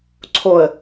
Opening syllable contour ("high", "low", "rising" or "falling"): low